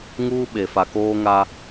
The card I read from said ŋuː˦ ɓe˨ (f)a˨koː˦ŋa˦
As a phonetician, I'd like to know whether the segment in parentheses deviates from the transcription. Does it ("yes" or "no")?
no